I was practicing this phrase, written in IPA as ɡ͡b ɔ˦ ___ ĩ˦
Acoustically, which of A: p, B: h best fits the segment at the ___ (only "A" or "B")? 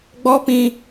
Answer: A